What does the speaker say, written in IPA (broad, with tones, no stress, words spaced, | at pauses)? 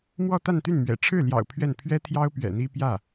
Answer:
mwɔ˥˧t̪a˥˧nt̪y˥˩n mɥɛ̰˨˩ ʈ͡ʂʰɻ̩˥˩ljɑ̰˨˩ʊ̯ pʰɥɛ˥˩n pʰɥɛ˥t̪ʰjɑ˥ʊ̯pɥɛ̰˨˩ n̪i˥pjä˥˩